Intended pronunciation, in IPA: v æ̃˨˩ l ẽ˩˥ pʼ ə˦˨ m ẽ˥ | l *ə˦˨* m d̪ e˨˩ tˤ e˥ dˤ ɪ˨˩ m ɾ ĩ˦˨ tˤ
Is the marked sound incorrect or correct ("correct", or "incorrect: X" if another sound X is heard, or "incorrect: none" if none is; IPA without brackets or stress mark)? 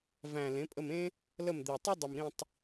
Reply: correct